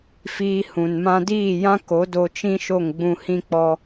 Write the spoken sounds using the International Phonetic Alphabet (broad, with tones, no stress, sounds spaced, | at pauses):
f iː˧ h ũ˨ n m ã˧ d iː˦˨ j ã˦ k o˨˦ d o˧ t͡ʃ ĩ˦ ʃ o˦˨ ŋ ɡ͡b ũ˧ h ĩ˦ k͡p ɔ˦